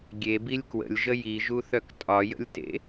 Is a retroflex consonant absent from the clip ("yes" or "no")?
yes